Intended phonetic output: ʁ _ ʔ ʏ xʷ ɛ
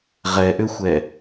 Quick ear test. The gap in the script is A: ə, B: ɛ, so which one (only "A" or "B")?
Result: B